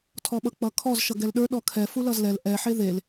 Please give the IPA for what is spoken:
tʰɔɓʌk͡pʌkʰɔz ʃʌɡɛlɗə˞ ɗɔkʰɛ fulʌzlɛl ʔɛ ħeðel

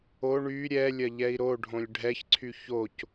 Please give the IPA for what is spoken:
o ɳy ɾʲɛlʲɐʎɛi̯ ɾoɖʱõlʲ ɖʱɛçǀʰy çoc

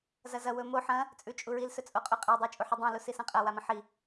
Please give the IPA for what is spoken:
zɐzɐ wɵmo ħɐ̃ | t͡sʼʉt͡ʃʼuɹil sɵt͡sʼoqʼuqʼe dˤut͡ʃʼuħɵdˤɐ̃ lusisɐ̃qʼɐ wamɐ̃ħi

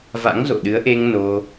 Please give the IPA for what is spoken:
va̰˧˥ŋzo̰˧˨ɗɨ˨˦ə̯ʔe˧ŋ no˧

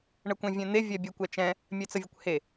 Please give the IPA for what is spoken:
ɳəkʷẽvʲɛ̃n̪e vʲɛbʲekʷɛt͡ʃɛ̃ | mʲɛt͡səvʲəkʷhe

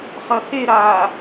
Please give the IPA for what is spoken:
χɐheɾaː

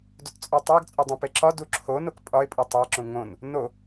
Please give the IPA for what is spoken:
dott͡sʼɒtˤæɡt͡sʼo dˤũpeǁɒ duǁʰo nokpʼɒɪ̯pʼu tˤæǁũ ŋõn | no

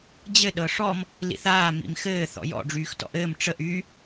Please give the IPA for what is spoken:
d͡ʑɘ ɗɤʂɔm | lḭθaː mḭmxɘː θɔ̰jɔ̰ ɖ͡ʐyːxtɔ̰ʔɘːm ʈ͡ʂəʔ y

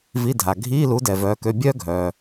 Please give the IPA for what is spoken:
vi˧˥˧dʱa˨ ɡʱiː˧˥˧lu˨˥ dɛ˨vœː˨˥kø˧˥˧ bʲœː˥ ɡʱœː˨

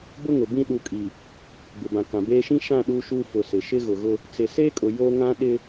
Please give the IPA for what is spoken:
bʊ˦ŋʊ˨bĩ˦ ɗu˨kʼi˨ | bɪ˨bã˨ kã˨beː˦ ʃĩ˦ ʃã˦˨ ɗu˦ʃu˦ fʊ˨sɪ˨ ʃɪ˦ɣʊ˨ɣʊ˦ | t͡sɪ˨se˦kʼʊ˨ jo˦ ŋã˦ɗɪ˦

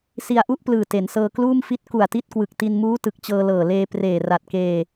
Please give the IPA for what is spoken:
si˧a̯ʔu˥˩ʔplɯː˨˩ te˩˦nsɤː˧ kluː˥˩mfi˥˩t̚ ku˨˩a̯ti˦˥t̚kwɯ˨˩k̚ ti˧nmuː˦˥ tɯ˨˩k̚t͡ɕɤː˧lɤː˨˩ leː˧preː˨˩ ra˨˩t̚keː˧

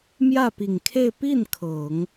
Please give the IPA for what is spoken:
mjä˥˩pi˨˩ŋkʰe˥˧ɪ̯ pi˥˩n kʰɤ˨˩˦ŋ

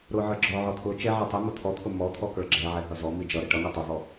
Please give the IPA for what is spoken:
ɾʊ ʕə˞ɡ͡ǁɔʕɔ t̪ʰʊ t͡ʃɛ ʕɛtˤimʊ t̪ʰɔt̪ʰʊ mɔt̪ʰɔ kə˞ɡ͡ǁɛʕɛ ɦʌzɔ mid͡ʒʌɾə ʈʌŋɔ tˤʊvɔ

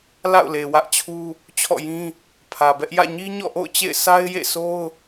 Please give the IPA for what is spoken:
la̰˦˨ʊ̯le˨wä˦ʔt͡ɕʰu˦ | t͡ɕʰɔ̰˦˨jĩ˦ | pʰä˨bɛ˦ʔ jä̰˦˨ɲi˦ɲɔ̰˦˨ʔo̰˦˨ʊ̯ t͡ɕḛ˦˨ɪ̯sa˦ɪ̯jḛ˦˨so˦ʊ̯

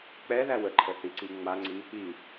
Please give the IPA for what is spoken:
k͡pɛðæ wəǃʰəθiǀi ŋ͡maŋ͡ǀi | i

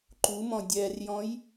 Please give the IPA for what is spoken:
ǃumɔ̃ dʲɛrjɔ̃j

